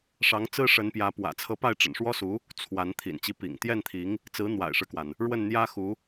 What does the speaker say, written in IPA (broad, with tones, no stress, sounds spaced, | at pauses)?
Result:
ʂ ɑ˧˥ ŋ t͡s ɹ̩˥ ʂ ə˧˥ n p j ä˧˥ p w ä̰˨˩ t͡sʰ ɤ˧˥ p a˥˩ ɪ̯ ʈ͡ʂ ə̰˨˩ n ʂ w ɔ˥ s u˧˥ | t͡sʰ w a˧˥ n t̪ʰ ḭ˨˩ n t͡ɕ i˧˥ p ḭ˨˩ ŋ t̪ j ɛ˥˩ n t̪ʰ i˧˥ ŋ | t͡s ɹ̩˧˥ n̪ w a̰˨˩ ɪ̯ ʂ ɻ̩˦ k w a˩ n | ɻ w ə˥˩ n n̪ j ä˥ x u˧˥